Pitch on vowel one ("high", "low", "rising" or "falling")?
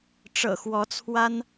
low